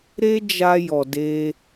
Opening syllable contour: high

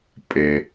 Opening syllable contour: high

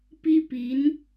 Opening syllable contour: high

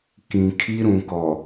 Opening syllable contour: low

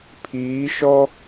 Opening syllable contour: rising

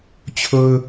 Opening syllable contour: high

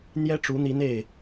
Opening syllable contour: high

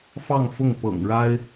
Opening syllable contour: falling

